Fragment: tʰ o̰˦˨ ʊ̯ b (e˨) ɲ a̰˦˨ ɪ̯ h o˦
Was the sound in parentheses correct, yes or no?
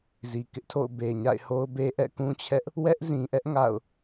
yes